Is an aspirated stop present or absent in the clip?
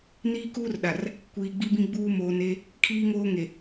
present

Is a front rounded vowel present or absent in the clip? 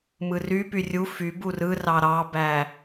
present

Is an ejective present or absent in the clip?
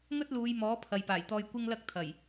absent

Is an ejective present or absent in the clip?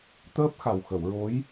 absent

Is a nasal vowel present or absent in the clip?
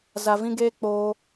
present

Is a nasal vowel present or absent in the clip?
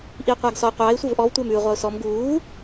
absent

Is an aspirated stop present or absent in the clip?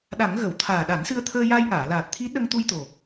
present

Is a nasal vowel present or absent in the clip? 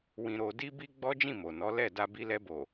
present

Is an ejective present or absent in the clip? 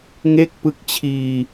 absent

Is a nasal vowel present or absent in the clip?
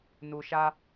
absent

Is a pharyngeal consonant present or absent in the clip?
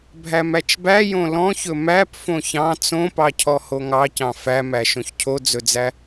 absent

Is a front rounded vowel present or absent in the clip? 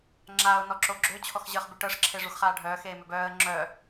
present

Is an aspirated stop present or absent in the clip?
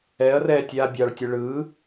absent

